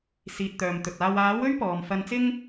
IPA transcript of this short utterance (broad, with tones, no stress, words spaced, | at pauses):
siː˨t̚t̪œː˨mt̪ɵ˨t̚ aː˨waː˨˥w ɵ˥ɥpɔː˨mfɐ˧nt͡sɪ˥ŋ